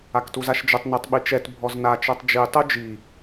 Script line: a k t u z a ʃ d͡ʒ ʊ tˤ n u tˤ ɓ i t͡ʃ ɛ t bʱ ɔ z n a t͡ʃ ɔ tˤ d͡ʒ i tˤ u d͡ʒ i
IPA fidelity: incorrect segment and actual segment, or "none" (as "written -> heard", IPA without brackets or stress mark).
none